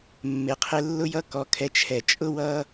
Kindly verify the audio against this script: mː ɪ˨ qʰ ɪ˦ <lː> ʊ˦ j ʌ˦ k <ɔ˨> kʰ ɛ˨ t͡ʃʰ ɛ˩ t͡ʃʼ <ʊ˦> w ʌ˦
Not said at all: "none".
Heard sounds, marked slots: lː, ɔ˨, ʊ˦

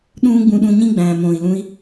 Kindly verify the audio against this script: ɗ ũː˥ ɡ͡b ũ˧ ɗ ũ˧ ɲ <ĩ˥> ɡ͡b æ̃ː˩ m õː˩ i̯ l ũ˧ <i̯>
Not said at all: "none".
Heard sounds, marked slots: ĩ˥, i̯

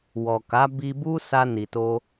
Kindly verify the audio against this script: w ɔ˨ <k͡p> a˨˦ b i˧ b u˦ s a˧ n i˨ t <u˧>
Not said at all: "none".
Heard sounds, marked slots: k, o˧

